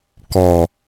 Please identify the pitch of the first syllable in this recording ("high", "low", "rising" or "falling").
low